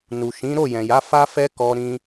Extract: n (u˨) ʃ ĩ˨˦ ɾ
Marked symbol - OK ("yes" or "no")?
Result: yes